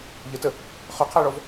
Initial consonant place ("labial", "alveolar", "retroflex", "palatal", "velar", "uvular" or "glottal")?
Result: palatal